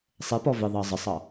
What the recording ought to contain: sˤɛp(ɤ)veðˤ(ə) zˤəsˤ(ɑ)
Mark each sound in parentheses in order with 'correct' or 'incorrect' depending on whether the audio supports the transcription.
incorrect, incorrect, correct

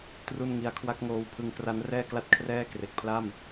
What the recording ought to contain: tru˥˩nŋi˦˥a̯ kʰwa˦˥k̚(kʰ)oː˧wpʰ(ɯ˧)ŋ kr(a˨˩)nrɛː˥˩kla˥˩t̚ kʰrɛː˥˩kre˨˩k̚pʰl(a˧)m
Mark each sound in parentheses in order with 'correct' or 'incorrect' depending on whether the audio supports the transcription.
incorrect, correct, incorrect, incorrect

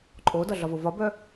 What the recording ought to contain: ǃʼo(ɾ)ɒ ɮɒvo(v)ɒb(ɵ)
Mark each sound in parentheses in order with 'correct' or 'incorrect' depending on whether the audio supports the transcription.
incorrect, correct, incorrect

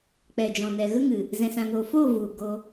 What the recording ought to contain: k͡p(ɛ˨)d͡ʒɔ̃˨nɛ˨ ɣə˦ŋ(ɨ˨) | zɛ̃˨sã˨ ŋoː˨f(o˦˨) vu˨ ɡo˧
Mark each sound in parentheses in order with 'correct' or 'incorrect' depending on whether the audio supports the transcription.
correct, correct, incorrect

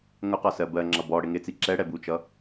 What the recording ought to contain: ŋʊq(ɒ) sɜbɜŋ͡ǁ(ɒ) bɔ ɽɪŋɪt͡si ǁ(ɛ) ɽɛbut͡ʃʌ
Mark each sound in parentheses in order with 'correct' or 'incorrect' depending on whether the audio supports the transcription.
correct, incorrect, correct

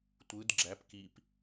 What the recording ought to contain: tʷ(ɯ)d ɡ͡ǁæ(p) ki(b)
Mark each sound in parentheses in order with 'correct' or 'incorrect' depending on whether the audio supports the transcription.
correct, correct, incorrect

